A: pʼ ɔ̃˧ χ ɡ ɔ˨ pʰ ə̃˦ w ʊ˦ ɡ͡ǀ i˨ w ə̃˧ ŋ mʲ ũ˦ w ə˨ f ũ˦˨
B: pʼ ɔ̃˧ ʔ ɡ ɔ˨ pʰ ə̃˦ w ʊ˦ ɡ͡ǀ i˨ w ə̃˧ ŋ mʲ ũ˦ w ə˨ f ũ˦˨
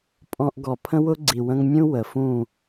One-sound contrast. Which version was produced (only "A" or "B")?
B